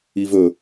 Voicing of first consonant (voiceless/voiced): voiced